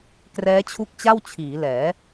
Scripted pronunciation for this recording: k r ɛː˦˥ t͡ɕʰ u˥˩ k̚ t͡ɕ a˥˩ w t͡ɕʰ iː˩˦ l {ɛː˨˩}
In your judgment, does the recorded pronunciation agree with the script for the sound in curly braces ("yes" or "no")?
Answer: no